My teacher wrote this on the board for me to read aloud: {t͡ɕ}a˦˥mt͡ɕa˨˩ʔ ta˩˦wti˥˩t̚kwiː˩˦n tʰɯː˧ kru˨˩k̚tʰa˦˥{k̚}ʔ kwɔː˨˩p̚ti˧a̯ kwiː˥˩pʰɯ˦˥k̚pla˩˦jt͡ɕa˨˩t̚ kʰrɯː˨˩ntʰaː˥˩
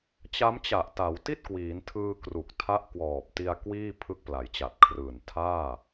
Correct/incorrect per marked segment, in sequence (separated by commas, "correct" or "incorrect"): correct, incorrect